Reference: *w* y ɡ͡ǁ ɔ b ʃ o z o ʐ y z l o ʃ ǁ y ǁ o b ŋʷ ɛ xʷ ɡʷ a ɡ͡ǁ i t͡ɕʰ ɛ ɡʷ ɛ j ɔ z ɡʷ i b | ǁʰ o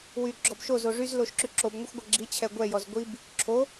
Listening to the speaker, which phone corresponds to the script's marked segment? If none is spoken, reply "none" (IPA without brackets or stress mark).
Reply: w